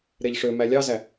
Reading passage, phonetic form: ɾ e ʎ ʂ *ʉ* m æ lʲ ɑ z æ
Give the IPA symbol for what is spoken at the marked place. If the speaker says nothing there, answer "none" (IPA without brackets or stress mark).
ø